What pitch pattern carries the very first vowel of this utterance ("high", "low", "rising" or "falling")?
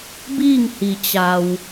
falling